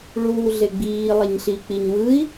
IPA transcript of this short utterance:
ɭ uː ɮ e ɡ͡b iː lˠ e ɲ ɬ i k͡p i ɲ w ɯ i̯

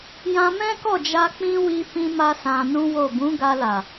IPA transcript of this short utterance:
j ã˧ m ɛ̃˦ k ɔ˦˨ d͡ʒ a˧ k͡p ĩ˦ w i˧ f ĩ˧ m a˧ s ã˧ n ũ˦ w o˦˨ b ũ˨˦ ɡ a˧ l a˨

